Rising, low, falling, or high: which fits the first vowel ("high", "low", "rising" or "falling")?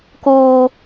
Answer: high